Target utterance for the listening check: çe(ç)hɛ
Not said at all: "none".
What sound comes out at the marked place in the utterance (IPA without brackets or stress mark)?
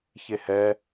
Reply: none